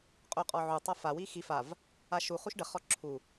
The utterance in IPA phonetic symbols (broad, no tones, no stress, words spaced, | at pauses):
qʼoqʼɔʕu tˤafa wixi fav | aʃu χuʃɖə χɔǁʰu